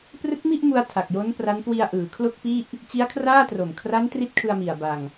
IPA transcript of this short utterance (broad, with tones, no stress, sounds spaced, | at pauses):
p r ɯ˦˥ k̚ m i˥˩ ʔ m u˧ a̯ tʰ a˨˩ k̚ j o˦˥ n p r a˦˥ n k w i˧ a̯ ʔ ɯː˩˦ kʰ l o˥˩ k̚ p i˥˩ ʔ | t͡ɕ i˦˥ a̯ kʰ r aː˥˩ t r o˨˩ m kʰ r a˦˥ n t r i˦˥ t̚ kʰ ɯ˧ a̯ m i˨˩ a̯ b a˧ ŋ